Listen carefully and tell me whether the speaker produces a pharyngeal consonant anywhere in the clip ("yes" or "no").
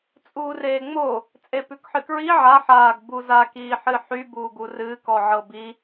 yes